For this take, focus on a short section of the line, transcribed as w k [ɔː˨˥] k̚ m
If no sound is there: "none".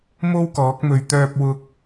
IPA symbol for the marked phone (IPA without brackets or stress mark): ɔː˨˥